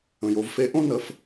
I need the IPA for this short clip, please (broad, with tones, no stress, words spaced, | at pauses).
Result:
ə̃˩jo˩˧vfe˧˥ʔõ˥ nə˩˧f